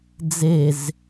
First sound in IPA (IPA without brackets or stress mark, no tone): d͡z